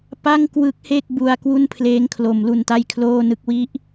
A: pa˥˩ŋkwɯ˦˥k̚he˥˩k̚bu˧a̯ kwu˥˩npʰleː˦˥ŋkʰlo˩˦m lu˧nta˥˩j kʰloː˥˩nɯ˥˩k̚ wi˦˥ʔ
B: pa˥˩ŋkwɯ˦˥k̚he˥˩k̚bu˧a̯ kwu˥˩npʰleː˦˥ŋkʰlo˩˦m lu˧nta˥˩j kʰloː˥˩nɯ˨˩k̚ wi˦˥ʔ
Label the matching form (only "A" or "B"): A